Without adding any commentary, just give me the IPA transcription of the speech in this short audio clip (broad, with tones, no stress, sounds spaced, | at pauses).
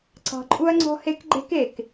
ǀ ɑ̤˨ ǃʼ u˦ ɐ̯ ŋ͡ǀ ɔ̤˦ h e˦ k ɡ͡ǃ e̤˦ k e˨ k